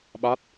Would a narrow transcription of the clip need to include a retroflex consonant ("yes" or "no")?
no